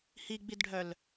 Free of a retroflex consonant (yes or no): no